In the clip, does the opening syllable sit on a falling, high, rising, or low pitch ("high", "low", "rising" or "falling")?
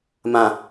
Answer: low